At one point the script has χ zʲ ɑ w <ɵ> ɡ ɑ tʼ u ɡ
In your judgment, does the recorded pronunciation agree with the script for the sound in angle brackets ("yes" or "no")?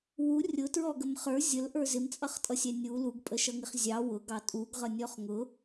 no